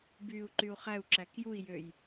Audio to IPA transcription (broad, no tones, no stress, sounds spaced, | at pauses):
b yː u̯ ǃ y u̯ χ æ u̯ ǁ æ k j u i̯ j ø j